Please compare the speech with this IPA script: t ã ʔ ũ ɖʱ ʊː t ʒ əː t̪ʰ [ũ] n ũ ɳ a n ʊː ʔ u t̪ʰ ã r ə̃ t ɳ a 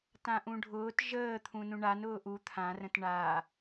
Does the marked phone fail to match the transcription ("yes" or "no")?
no